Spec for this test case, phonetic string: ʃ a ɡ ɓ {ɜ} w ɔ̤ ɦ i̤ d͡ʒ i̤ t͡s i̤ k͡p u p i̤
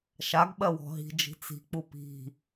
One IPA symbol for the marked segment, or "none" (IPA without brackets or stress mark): ɜ